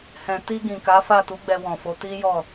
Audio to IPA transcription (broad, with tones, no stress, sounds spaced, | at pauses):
h ɛ̃˨ t i˧ ɡ ĩ˨ k a˨˦ f a˦˨ t u˨˦ ɡ͡b ɛ˧ w ɔ̃˨ f o˨˦ t i˦ j ɔ˦˨